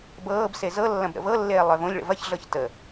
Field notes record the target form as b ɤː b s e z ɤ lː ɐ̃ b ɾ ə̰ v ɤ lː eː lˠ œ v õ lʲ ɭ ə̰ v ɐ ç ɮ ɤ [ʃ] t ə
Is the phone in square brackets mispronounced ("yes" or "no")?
yes